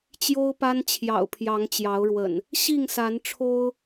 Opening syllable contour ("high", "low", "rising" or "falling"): high